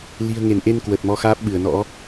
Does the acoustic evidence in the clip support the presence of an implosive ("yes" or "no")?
yes